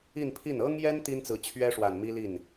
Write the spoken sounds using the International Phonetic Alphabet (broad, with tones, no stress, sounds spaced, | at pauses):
i˥˧ n pʰ i˥˩ n ɤ˥ ŋ j ɛ˥ n t̪ i˥ n t͡s ɹ̩˧˥ t͡ɕʰ ɥ ɛ˥ ʂ w a˨˩ n m i˥ l i˥˩ n